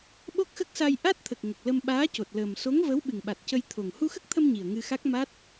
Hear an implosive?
yes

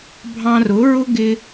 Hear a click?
no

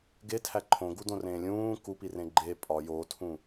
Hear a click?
yes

